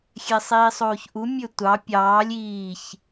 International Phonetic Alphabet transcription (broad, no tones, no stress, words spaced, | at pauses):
xʲesˤiːsˤoːçʔu mʲøtʷɑ pʲɑːlʲ iːç